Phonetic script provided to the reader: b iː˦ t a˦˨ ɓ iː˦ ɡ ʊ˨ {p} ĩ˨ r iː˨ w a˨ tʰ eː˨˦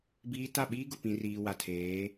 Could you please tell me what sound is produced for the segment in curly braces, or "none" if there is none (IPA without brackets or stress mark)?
p